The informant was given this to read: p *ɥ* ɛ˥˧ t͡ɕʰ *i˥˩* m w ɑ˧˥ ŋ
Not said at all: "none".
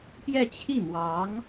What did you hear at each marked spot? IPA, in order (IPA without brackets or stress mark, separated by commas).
j, i˥˩